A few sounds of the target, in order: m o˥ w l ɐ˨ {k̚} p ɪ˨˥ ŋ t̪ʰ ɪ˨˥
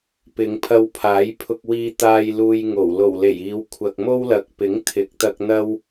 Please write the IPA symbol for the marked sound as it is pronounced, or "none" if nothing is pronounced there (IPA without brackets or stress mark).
k̚